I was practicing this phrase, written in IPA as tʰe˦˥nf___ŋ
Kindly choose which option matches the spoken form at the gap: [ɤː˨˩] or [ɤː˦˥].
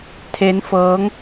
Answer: ɤː˦˥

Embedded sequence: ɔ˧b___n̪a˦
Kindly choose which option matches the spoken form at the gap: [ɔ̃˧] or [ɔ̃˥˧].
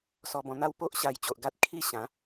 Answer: ɔ̃˧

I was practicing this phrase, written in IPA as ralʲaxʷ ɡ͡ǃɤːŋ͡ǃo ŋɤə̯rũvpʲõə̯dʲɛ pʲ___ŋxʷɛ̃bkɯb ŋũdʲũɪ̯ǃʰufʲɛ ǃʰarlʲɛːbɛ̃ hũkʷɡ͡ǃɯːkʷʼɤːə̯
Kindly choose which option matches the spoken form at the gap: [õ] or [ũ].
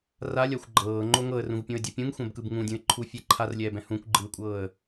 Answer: ũ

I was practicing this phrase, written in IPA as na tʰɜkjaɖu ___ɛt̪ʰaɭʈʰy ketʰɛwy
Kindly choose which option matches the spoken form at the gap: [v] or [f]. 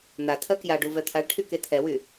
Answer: v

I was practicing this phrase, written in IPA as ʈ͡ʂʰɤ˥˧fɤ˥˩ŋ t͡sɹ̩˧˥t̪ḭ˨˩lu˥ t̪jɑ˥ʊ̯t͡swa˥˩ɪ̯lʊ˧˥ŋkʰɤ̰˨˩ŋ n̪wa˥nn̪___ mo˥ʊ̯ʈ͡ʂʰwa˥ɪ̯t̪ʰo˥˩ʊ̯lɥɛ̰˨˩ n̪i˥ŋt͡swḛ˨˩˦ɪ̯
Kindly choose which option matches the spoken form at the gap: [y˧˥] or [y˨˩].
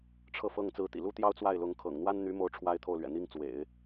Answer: y˧˥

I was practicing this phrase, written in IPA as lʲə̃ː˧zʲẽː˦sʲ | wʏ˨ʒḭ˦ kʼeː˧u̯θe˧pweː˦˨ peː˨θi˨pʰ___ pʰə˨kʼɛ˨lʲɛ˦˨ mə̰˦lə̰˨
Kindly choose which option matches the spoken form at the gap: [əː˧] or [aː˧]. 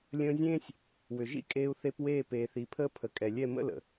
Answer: əː˧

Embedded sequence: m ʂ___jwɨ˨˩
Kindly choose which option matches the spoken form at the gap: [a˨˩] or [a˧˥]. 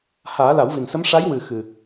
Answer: a˧˥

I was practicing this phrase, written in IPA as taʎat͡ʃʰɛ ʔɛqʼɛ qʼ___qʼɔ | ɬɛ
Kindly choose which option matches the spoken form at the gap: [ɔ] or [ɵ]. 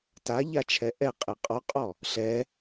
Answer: ɔ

